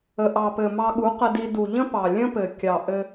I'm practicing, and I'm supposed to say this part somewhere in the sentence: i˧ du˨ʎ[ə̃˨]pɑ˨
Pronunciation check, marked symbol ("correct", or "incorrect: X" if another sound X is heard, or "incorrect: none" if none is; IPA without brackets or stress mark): incorrect: ə̃˦